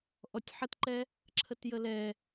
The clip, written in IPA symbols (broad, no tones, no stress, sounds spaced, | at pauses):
ʔ ɔ tʲ ħ ə t ǃ ɛ | ǁʰ ə t j ə l ɛ